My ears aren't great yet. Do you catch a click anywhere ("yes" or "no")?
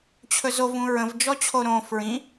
no